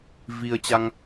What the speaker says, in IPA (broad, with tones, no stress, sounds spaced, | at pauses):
v i˧ ə̯ t͡ɕ a˧ ŋ